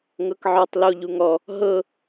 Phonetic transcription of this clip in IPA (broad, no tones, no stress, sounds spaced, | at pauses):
ŋ ɤ k ʕ ɔ tˤ l o ʎ u ŋ ɔ | ɦ ɤ